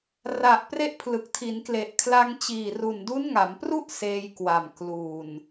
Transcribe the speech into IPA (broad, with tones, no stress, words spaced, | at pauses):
ra˨˩ʔpre˦˥ʔpʰlɯ˨˩k̚ tʰi˩˦nkle˨˩ʔkʰla˧ŋt͡ɕiː˨˩ ru˨˩ndu˦˥nŋa˩˦mpru˥˩ʔ seː˧jkwa˨˩m kluː˨˩n